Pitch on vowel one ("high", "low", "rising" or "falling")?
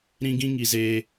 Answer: high